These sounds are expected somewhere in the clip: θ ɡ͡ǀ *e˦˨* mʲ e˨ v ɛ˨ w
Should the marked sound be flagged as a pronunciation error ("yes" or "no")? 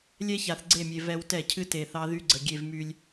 no